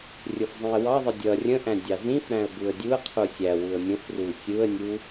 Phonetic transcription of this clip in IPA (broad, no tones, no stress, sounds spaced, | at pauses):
rʲ ʊ f zˤ ĩ ə̯ w ɑ ðˤ ʌ dʲ ʌ rʲ ə̃ ʔ æ̃ dʲ ɑ z ĩ f ɾ æ̃ ə̯ b u ə̯ dʲ u ə̯ qʰ u sʲ æ w u ə̯ mʲ ə̃ f r u sʲ u ə̯ nʲ u